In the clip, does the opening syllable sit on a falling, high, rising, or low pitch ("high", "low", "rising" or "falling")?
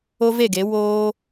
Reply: high